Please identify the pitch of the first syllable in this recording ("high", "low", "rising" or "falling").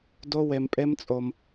high